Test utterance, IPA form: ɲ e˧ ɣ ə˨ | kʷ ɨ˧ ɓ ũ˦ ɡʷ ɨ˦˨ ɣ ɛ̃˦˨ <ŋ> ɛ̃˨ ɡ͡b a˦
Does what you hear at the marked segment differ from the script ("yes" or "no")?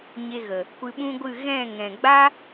no